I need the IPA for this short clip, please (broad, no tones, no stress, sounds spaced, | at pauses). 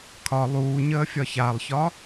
kʰ ɒ lˠ uː ɲ əː fʲ ɒ ç a lˠ ç ɒ